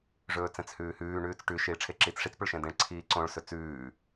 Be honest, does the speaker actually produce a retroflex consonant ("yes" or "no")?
yes